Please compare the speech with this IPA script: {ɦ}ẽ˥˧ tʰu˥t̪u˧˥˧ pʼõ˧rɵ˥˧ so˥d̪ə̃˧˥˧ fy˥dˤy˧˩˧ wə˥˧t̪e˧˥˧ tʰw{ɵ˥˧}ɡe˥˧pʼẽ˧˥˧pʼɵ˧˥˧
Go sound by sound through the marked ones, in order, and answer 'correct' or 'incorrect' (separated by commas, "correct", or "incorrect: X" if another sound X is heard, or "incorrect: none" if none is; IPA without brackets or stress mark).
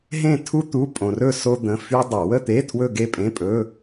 correct, correct